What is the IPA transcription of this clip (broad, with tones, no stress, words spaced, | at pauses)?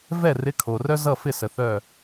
vɛ˥˨rɪ˧˥˧kʰo˨rœ˥ zʌ˥˨fɪ˥˨sə˨ θœ˥˨